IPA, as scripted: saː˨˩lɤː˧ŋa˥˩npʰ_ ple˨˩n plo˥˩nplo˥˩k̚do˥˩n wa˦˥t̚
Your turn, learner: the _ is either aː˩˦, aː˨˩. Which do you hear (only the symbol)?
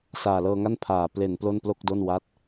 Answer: aː˨˩